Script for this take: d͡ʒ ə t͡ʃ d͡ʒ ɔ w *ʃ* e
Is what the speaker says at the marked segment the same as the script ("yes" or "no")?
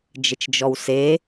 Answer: no